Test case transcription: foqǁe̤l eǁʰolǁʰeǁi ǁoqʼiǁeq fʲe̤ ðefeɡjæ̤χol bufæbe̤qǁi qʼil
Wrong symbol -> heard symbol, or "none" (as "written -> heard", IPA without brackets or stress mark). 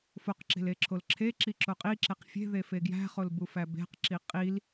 none